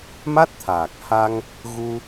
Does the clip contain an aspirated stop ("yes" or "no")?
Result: yes